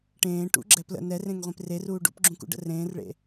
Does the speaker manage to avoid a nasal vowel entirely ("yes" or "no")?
no